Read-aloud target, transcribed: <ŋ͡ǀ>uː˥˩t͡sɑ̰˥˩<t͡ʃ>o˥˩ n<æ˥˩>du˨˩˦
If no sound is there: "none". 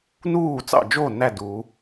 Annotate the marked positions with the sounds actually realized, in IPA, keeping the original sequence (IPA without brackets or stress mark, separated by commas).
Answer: n, d͡ʒ, æ˥˩